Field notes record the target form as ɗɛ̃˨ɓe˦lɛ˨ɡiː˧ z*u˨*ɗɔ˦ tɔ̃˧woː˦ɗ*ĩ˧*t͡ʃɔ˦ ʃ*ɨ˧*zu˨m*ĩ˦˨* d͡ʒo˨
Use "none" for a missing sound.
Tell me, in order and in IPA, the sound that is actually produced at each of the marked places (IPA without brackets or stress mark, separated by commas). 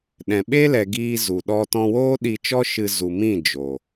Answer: u˨, i˧, ɨ˧, ĩ˦˨